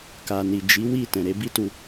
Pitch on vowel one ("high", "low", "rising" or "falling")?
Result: low